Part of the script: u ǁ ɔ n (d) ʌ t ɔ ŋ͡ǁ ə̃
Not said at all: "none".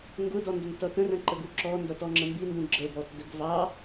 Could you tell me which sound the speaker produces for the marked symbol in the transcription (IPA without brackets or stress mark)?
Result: d